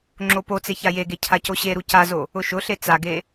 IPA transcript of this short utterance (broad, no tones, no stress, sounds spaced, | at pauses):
ŋ͡ǁ o p o t͡s e ç a j e ɡ e cʰ a c o ɕ e ɾ u c a z o | ʊ ʃ ʊ ɬ e t͡s a ɡ e